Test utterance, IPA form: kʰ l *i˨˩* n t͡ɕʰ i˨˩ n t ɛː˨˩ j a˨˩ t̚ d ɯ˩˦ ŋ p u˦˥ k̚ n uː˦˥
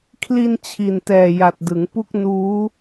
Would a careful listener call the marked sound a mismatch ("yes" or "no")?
yes